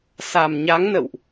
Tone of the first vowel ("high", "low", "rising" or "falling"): low